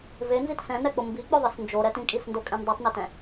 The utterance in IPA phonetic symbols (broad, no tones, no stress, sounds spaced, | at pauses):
v e n z i t s ɛ̃ n ɛ k͡p ʊ m b i k͡p ʊ ðˤ ɨ s n d͡ʒ o ɾ ɛ t ĩ kʼ i s n d o kʼ ẽ n dˤ o tˤ n ʊ t ɛ̃